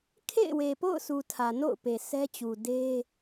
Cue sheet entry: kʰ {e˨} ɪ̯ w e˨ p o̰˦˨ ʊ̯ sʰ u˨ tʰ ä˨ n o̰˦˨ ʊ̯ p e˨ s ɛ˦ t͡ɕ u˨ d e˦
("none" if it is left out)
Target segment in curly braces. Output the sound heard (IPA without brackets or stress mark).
ḛ˦˨